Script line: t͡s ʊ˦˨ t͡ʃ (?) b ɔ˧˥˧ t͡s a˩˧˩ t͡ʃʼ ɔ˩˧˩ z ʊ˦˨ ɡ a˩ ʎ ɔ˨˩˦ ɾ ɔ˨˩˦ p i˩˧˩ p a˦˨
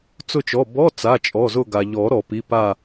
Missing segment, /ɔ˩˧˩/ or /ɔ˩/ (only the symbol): ɔ˩˧˩